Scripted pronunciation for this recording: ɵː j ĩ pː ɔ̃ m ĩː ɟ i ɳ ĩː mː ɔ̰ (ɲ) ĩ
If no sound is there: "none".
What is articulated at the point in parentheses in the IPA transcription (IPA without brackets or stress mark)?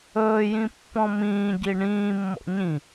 ɲ